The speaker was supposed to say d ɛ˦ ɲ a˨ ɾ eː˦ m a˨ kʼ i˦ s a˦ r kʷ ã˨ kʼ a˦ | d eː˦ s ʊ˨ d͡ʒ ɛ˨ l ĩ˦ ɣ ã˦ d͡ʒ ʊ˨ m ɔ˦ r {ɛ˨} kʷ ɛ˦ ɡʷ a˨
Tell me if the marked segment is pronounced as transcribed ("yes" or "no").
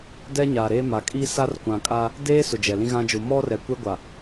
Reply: yes